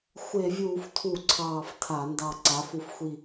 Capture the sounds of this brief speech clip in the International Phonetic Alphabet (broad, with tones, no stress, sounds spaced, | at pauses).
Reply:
xʷ e˧˩˧ vʲ uː˧˩˧ f tʰ u˧˩˧ ǀʰ ɑː˧˩ f tʰ a˧˩˧ n d ɑ˧˩ ǀ a˩˥ f u˧˩ f xʷ i˧˩